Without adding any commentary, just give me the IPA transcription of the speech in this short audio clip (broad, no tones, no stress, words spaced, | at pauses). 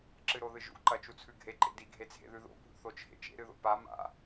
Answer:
ǁɨɾoðɨʒṵ ǃɐt͡ʃut͡sʰʉɡʱe ǃḛdi ɡʱet͡sʰḛðʉðo̰ bʱṵθot͡ʃʰḛt͡ʃḛ ɾɨðo̰pa ma̰